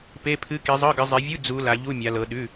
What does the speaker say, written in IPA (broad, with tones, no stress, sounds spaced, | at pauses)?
p e˧˥˧ pʰ ɨ˧˥˧ k i˨˦ zˤ ɤ˧˥˧ ɡ ɨ˨˦ zˤ e˨˦ vʲ u˧˥˧ d͡z u˨˦ l a˨˦ ʎ u˧˥˧ mʲ a˨˦ l ɤ˨˦ ɗ ʉ˧˥˧